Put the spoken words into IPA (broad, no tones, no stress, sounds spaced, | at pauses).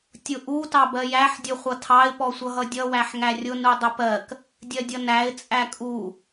tʲ ʊ ʔ u t ɑ b ɜ j æ ħ dʲ ʊ χʷ ʌ tʰ ɑ ɪ̯ p ɔ sʷ ʌ ɦ ʌ dʲ ʌ w æ ħ ŋ æ rʲ ʊ n u dˤ ʊ p ɜ k | dʲ ɜ dʲ ʌ n æ ɪ̯ t͡sʼ æ kʼ u